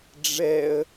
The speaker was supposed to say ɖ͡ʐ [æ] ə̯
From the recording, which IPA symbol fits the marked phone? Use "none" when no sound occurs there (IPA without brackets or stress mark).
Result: ɛ